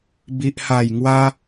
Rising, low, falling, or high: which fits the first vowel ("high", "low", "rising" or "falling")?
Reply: high